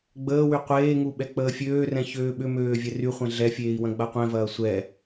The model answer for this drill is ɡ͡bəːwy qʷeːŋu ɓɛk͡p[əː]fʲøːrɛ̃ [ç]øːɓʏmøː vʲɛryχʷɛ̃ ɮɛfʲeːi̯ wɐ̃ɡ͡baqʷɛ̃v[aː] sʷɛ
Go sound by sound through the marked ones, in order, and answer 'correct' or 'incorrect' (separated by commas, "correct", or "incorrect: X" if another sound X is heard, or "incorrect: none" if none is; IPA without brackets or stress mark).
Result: correct, correct, incorrect: ɐː